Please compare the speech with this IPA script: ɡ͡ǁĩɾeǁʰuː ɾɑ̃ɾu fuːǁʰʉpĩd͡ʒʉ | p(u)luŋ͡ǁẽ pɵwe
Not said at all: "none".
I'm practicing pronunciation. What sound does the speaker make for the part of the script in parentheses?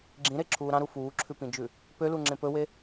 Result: ø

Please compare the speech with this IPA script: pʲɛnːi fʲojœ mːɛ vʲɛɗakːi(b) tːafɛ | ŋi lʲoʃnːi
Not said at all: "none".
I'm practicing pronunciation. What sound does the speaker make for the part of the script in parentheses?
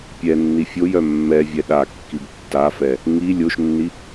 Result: b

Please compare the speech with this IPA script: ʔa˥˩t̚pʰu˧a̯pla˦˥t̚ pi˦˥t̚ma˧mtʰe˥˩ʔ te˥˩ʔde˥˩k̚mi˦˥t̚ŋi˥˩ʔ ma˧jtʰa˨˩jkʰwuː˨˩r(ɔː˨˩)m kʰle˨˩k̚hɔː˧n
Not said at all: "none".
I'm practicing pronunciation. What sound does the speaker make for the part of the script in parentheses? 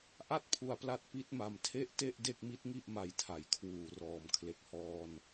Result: ɔː˨˩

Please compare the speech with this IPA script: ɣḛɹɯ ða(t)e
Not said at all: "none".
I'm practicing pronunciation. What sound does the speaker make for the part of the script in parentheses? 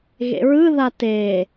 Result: t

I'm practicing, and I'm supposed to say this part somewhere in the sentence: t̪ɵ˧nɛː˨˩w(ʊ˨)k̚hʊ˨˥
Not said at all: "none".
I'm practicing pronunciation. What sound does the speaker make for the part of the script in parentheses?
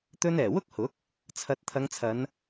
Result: ʊ˥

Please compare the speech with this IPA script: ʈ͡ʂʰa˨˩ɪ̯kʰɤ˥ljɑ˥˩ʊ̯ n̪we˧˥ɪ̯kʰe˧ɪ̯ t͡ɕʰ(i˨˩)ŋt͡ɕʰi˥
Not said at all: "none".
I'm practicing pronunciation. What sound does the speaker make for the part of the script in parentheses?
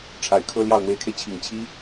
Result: i˨˩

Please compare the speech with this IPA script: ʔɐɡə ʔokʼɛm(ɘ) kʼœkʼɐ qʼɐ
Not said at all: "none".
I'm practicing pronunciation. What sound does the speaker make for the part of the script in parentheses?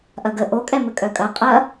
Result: ɘ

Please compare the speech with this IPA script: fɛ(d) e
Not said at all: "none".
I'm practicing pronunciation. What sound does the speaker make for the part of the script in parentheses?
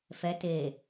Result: t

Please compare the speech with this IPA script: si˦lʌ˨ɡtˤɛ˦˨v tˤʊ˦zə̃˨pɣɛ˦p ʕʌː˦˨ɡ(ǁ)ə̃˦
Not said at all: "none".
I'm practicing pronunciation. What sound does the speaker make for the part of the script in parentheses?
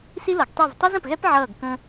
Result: k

